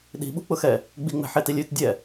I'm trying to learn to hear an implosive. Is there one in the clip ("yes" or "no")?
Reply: yes